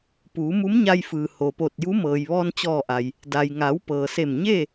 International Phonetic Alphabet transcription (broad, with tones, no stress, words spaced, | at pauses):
puː˩˧mu˧˥mɲa˧jfɯː˩ ho˩po˧˩t̚ju˧˥ mɤː˩jʋɔː˧nt͡ɕɔː˧˩ ʔa˩j | da˩jŋa˩˧w pɤː˩se˧˩mɲeː˥˨